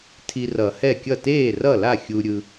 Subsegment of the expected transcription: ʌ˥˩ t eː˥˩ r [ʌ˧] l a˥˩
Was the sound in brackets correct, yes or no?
no